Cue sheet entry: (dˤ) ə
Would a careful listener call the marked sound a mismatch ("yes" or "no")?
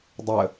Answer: no